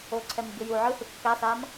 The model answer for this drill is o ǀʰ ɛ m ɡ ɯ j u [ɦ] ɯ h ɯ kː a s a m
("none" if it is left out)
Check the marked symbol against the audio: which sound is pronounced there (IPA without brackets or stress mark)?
ʕ